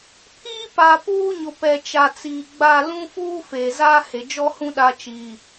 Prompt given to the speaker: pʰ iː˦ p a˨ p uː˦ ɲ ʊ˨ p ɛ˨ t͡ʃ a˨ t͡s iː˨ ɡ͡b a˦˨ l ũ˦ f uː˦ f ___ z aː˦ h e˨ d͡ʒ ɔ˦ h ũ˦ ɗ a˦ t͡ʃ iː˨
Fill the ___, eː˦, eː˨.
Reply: eː˨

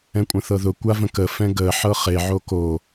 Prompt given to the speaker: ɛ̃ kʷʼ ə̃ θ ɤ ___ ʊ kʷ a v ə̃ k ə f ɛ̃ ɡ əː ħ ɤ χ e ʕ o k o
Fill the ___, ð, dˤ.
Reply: ð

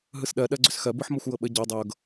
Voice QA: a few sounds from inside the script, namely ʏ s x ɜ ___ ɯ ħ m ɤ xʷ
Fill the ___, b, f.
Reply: b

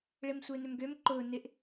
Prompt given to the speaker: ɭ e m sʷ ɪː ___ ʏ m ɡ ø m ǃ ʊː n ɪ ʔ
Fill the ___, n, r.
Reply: n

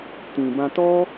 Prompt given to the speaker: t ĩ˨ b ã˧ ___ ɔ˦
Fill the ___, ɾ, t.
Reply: t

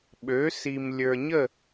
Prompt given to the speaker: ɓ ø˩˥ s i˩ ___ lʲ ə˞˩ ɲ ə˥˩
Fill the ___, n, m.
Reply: m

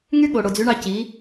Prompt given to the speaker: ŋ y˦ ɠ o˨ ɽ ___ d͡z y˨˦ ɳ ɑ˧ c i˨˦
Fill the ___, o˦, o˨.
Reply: o˨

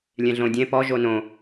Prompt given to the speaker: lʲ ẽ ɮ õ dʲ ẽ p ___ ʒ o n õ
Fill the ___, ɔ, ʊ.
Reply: ɔ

